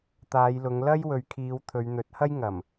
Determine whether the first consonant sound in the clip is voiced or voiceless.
voiceless